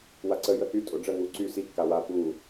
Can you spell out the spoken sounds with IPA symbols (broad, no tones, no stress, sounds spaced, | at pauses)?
w a ǀ ə j ə h y tʼ o ɖ͡ʐ ə ŋ u ǀ y s i kː a w a p u